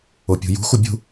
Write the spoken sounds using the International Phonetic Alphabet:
o pʲ ṳ j ṳ x u bʲ ṳ

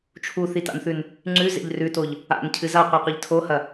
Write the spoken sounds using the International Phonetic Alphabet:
t͡ʃʰ u θ i t a̰ n θ ʉ n | ŋ͡ǀ ʉ z ḛ ʎ r ʉ t o ʎ | a̰ n cʰ ɨ z a qʷ i qʷ i ʎ tʰ o h ɐ

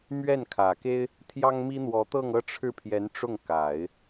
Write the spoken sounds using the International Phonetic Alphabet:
m ɥ ɛ˥˩ n kʰ ä˨˩ k e˥ ɪ̯ | t̪ʰ j ɑ˥ ŋ m i˥ n̪ w ɔ˧˥ t̪ ɤ˥˧ ŋ ɤ˥˧ ʈ͡ʂʰ ɻ̩˥˩ pʰ j ɛ˧˥ n ʈ͡ʂ ʊ˥˩ ŋ k a˨˩˦ ɪ̯

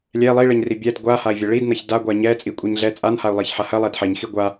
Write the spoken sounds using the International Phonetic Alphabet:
lʲ ɛ lˠ i ɭ ɛ ɲ r i bʲ ɛ d ɡʷ a h a i̯ vʲ ɐ ɭ i d n ɐ ç d a ɡʷ a ɲ ɛ t͡sʼ i kʷʼ i ɲ ɮ ɛ t͡sʼ a n h a u̯ lˠ i ç ħ a h ɐ lˠ ɛ d ħ ɛ ɲ x i ɡʷ a

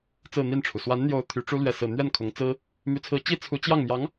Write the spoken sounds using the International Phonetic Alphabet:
t͡s ɹ̩˥˧ n̪ i˥˩ n ʈ͡ʂʰ u˩ s w a˧˥ n n̪ j o˧˥ ʊ̯ t̪ʰ y˧˥ ʈ͡ʂ u˥ l ɥ ɛ˥˧ s ɹ̩˥˧ n̪ ɥ ɛ˥˩ n kʰ ʊ˧˥ ŋ t͡s ɹ̩˥ | m y˧˥ t͡sʰ ɹ̩˧˥ t͡ɕ i˥ t͡sʰ u˧˥ t͡ɕ j ɑ˥˩ ŋ m j ɑ˧˥ ŋ

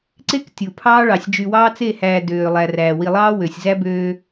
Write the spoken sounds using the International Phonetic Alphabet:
ǀ e˦ k tʲ u˨ pʰ ɑː˦ ɭ ɑ˨ sʲ d͡ʒ y˨ w ɑː˦ t͡s e˦˨ h æː˨ d øː˨ lˠ æ˨ r æː˨ w i˨ lˠ ɑː˦ w ø˨ sʲ z æ˦ b øː˦

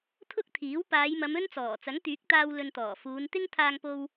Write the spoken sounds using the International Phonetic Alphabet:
t̪ʰ ʊ˥ k̚ t̪ʰ iː˨˥ w p aː˨˧ j m ɐ˨˧ m ɵ˥ n t͡s ɔː˨˩ t͡s ɐ˨˥ ŋ t̪ yː˨˥ k̚ t̪ aː˧ w l ɵ˧ n t̪ ɔː˨˩ f uː˨˧ n t̪ ɪ˥ ŋ t̪ʰ aː˧ ŋ p o˧ w

